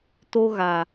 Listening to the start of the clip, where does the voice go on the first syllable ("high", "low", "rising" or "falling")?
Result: high